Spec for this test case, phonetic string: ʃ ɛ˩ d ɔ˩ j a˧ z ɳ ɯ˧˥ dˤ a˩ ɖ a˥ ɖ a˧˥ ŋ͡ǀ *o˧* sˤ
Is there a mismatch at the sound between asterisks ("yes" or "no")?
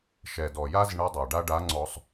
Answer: yes